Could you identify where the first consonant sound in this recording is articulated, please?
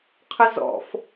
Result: uvular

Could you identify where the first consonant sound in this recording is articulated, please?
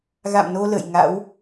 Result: velar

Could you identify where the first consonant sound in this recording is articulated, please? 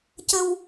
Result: palatal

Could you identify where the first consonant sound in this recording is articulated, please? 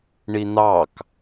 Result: retroflex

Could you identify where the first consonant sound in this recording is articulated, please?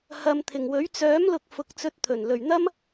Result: glottal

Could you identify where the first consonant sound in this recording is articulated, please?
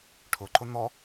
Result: retroflex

